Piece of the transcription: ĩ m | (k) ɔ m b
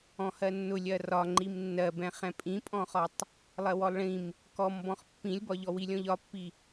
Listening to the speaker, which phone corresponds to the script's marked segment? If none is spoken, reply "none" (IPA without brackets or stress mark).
k